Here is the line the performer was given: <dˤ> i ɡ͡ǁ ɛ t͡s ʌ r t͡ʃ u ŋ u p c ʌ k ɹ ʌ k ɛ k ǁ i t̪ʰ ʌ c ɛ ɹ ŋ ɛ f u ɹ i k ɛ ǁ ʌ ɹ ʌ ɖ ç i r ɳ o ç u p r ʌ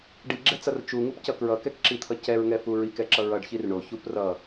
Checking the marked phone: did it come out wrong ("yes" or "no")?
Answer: yes